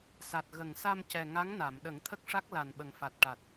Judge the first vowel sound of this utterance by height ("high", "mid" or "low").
low